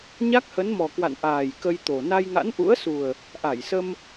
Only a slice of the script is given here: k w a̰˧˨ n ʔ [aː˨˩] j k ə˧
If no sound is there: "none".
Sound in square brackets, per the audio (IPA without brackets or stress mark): aː˨˩